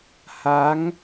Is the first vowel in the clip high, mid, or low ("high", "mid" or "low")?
low